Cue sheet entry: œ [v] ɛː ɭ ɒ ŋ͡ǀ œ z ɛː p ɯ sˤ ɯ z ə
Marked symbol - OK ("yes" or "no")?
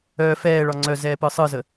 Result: no